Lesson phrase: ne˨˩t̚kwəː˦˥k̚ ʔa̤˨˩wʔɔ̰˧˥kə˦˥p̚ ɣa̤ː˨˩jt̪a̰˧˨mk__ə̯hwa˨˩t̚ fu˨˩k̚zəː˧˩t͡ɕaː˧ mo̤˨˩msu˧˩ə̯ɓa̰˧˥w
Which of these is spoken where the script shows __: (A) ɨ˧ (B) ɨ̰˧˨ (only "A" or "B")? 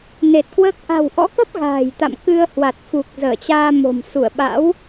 A